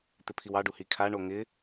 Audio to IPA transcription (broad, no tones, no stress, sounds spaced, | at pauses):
t̪ ɪ pʰ i w ɑ ɖ u h i kʰ a ɳ o ŋ ɪ